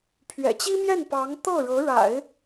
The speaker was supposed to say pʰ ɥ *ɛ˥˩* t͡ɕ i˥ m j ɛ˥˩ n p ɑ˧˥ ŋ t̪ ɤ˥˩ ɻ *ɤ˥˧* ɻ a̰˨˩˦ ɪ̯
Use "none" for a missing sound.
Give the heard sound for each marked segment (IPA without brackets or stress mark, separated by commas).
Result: ɛ̰˨˩, ɤ˧˥